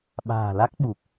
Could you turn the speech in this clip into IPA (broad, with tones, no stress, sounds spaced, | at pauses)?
ɓ a̤ː˨˩ l a˦˥ k̚ ɓ u˨˩ k̚